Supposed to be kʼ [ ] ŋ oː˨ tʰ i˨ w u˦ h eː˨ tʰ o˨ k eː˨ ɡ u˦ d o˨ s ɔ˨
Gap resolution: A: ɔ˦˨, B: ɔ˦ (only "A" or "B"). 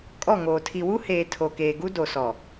A